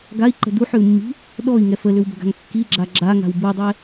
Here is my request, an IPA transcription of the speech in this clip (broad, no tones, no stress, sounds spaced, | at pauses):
ɡ a i̯ ǃ ə̤ d u ħ ʏ u̯ mː i̤ | ɗ ɔ i̯ ŋ ɛ f ə l ʏ w b ə̤ ɡ a̤ ŋ kː i ɡ͡ǁ a ɡ͡ǁ a ŋ a̤ w b u dˤ ɛ